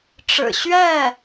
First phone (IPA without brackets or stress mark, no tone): ʈ͡ʂ